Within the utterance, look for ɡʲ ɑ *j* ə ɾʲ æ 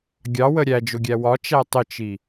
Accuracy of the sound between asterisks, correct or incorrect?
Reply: incorrect